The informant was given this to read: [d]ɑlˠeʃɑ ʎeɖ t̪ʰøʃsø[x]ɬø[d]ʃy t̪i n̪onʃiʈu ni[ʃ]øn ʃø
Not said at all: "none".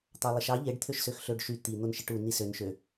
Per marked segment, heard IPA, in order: t̪, x, ɖ, s

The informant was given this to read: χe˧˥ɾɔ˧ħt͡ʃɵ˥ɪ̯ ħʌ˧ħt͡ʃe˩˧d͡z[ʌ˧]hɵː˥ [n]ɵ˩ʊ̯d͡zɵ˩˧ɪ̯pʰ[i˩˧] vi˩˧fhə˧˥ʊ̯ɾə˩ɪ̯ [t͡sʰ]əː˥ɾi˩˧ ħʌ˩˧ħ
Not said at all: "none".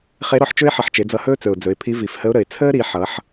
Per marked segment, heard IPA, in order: ʌ˧, t͡s, i˧˥, t͡sʰ

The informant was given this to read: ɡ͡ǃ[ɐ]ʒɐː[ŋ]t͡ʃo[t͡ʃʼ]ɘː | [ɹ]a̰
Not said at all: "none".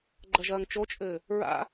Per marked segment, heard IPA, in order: ɐ, ŋ, t͡ʃʼ, ɹ

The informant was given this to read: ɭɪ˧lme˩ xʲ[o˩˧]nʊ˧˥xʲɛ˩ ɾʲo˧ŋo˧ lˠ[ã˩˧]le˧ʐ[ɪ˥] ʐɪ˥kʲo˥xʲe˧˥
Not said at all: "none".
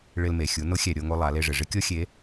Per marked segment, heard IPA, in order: u˩˧, a˩˧, ɪ˩

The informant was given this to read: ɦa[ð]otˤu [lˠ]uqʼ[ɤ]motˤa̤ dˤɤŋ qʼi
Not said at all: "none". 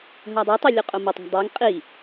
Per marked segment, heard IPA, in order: dˤ, lʲ, o

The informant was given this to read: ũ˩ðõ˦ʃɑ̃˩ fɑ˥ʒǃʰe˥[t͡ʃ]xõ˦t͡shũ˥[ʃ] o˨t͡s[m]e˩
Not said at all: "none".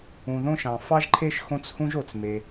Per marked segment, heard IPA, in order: ʃ, ʒ, m

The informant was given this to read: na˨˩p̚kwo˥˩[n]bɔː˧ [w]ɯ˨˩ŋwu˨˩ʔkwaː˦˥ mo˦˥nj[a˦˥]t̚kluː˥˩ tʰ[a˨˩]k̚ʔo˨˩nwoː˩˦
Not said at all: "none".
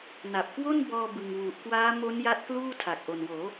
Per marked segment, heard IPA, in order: n, b, a˦˥, a˨˩

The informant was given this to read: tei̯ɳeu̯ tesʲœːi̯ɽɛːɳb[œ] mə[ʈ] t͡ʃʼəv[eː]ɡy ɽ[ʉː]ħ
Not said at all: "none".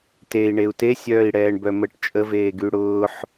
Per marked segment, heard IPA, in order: œ, ʈ, eː, ʊː

